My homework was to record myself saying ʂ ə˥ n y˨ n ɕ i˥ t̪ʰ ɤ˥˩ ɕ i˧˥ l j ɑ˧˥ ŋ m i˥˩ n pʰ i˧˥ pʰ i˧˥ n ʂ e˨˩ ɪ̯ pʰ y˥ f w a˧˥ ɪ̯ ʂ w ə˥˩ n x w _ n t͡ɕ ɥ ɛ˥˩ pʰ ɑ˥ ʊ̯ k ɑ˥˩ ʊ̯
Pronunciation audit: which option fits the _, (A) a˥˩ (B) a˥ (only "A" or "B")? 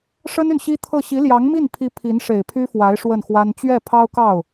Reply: B